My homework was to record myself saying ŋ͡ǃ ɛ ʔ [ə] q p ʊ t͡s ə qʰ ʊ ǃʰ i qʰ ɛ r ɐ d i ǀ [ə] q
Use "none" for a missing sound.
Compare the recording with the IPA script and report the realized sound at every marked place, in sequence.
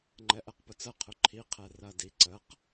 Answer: ɛ, ə

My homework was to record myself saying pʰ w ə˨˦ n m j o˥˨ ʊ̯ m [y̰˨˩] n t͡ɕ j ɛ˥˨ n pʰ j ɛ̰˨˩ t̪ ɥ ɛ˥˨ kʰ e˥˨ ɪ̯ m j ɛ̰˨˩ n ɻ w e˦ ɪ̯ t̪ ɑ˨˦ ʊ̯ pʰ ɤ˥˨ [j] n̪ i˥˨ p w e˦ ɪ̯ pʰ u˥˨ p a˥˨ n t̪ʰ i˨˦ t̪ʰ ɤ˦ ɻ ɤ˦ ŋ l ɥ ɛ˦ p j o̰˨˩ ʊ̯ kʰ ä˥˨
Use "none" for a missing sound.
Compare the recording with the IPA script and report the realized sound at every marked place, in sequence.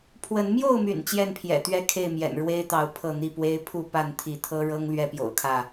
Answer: y̰˨˩, none

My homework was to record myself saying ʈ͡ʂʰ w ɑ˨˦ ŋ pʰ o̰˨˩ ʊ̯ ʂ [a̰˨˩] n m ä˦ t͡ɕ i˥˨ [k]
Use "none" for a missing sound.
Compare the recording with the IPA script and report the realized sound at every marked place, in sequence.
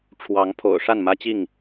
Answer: a˥˨, ŋ

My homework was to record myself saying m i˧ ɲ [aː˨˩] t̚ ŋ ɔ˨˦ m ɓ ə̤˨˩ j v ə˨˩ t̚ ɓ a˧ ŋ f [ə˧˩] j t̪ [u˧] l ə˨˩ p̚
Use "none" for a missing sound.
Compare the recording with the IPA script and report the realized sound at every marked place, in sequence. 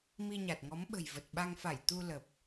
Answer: a˨˩, a˧˩, u˧

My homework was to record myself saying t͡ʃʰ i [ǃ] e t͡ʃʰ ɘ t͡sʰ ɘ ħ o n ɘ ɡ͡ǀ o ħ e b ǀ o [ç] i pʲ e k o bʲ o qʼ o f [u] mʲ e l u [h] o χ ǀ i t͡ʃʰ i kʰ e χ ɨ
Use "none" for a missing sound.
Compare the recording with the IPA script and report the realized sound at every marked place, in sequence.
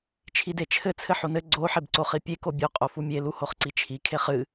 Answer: d, χ, u, h

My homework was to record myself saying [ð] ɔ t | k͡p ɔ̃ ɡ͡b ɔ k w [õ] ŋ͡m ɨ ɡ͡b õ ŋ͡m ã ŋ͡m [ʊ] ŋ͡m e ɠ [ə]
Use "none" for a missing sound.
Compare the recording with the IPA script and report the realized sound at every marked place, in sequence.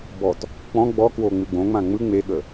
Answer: b, o, ɯ, ə

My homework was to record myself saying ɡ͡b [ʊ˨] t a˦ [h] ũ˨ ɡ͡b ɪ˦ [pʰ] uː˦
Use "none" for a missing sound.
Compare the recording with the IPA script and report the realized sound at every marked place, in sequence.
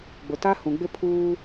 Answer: ʊ˨, h, pʰ

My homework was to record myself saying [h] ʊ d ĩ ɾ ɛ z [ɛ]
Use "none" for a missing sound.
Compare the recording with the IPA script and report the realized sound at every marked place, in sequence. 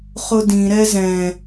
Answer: χ, ɛ̃

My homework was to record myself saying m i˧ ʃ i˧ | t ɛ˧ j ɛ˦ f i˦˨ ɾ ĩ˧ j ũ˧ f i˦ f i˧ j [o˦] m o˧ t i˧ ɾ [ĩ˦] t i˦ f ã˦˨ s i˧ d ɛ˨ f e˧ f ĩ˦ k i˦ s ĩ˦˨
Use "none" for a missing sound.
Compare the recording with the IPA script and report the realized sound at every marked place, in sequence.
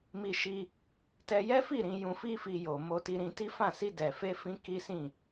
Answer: o˨, ĩ˧

